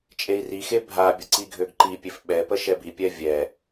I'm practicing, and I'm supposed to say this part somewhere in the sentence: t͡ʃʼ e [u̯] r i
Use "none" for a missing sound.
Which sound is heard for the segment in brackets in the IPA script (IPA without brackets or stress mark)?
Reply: i̯